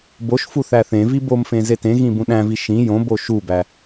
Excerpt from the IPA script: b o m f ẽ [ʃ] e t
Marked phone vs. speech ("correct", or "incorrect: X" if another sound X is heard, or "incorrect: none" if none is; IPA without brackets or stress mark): incorrect: z